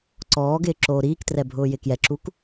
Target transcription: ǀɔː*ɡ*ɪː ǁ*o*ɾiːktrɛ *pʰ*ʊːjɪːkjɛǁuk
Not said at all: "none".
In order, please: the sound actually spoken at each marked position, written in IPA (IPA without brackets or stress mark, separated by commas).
ɡ, oː, bʱ